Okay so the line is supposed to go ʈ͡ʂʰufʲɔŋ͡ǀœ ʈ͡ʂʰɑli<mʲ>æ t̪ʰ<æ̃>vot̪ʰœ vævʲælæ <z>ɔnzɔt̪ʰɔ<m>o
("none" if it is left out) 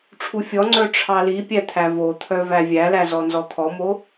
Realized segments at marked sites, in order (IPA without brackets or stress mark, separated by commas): pʲ, æ, z, m